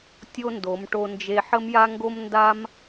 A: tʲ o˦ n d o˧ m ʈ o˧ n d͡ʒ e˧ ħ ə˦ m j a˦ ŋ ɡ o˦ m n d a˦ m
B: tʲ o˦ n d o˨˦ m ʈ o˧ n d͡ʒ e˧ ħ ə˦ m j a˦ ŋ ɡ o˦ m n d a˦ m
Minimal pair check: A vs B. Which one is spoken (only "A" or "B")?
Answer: B